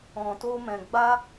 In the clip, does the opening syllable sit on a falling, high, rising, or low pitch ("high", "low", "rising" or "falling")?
low